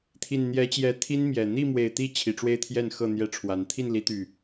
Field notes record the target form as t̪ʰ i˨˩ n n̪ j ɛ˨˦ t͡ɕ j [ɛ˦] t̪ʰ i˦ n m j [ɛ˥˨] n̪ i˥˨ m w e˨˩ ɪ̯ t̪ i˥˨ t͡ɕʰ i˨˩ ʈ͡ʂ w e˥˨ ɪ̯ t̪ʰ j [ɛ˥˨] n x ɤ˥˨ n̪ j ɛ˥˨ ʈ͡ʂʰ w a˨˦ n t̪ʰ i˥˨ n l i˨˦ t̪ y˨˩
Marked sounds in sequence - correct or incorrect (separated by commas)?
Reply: incorrect, incorrect, correct